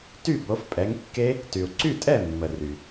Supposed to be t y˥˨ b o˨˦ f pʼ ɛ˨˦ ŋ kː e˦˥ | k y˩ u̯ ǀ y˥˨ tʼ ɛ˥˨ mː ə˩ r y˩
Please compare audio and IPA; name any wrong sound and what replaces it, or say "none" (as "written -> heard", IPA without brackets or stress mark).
k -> t